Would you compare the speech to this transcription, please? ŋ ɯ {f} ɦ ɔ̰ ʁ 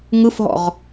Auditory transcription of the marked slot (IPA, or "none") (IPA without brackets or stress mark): f